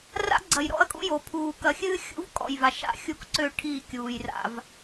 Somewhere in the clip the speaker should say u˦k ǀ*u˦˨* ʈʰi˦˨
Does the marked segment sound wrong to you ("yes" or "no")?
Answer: yes